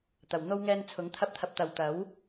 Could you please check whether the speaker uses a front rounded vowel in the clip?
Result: no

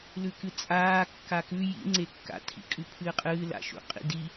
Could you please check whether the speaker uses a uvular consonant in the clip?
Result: yes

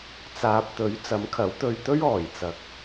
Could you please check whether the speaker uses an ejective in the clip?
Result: no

